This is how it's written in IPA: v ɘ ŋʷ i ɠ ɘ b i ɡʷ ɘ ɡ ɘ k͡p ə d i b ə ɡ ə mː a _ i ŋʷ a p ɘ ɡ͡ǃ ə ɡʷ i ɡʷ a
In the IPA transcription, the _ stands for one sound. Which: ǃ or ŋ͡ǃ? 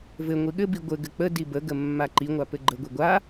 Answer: ǃ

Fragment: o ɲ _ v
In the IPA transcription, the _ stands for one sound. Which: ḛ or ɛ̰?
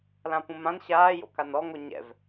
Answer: ɛ̰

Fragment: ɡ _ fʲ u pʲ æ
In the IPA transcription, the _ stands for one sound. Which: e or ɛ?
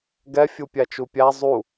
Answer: ɛ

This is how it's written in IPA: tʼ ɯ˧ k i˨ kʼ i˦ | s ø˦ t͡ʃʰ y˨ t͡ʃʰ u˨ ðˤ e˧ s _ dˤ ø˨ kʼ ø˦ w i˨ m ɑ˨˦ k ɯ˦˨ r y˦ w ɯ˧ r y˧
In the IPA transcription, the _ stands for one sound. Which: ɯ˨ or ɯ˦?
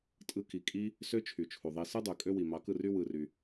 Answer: ɯ˦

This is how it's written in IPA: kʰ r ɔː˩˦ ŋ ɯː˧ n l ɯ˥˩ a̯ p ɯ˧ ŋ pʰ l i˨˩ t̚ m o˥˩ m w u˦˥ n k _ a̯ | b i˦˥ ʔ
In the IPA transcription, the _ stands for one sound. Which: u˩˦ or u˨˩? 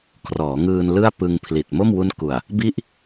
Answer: u˨˩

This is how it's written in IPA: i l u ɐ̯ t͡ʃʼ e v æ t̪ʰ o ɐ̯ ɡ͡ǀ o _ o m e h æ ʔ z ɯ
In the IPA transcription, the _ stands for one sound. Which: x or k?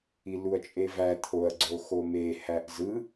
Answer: x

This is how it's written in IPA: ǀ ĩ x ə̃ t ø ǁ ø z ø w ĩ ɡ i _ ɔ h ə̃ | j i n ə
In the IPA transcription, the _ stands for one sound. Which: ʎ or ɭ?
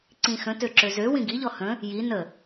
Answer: ʎ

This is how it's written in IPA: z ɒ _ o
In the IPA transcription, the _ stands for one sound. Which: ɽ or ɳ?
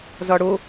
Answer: ɽ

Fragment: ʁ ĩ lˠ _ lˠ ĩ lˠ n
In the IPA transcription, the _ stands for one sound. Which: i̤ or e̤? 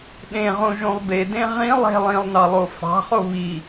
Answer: e̤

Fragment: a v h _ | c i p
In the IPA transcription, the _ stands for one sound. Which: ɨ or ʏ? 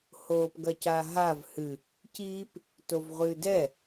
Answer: ɨ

